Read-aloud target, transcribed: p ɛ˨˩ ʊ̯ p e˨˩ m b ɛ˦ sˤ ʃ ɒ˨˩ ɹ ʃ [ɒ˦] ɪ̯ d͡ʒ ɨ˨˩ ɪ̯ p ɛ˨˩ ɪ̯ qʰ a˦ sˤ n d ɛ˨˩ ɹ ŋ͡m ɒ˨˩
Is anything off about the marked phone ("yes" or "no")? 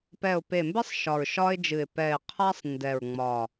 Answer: no